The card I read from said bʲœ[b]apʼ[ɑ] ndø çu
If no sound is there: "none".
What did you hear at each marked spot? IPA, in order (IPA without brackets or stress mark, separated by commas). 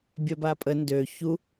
b, ə